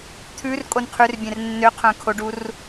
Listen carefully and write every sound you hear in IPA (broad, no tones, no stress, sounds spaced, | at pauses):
t̪ʰ ʉ r kʼ o n qʰ ʉ r bʲ ɛ̃ r nː ø qʰ œ̃ kʰ o ɖ u r